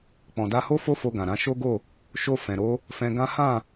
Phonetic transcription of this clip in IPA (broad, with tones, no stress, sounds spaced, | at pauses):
k͡p ɔ̃˨ d a˧ h o˦ f o˦ f o˧ ɡ ã˨ ɾ ã˨˦ ʃ o˦ ɡ o˦˨ | ʃ o˧ f ɛ̃˨ ɾ o˨˦ | f ɛ̃˧ ɡ ã˦ h ã˦˨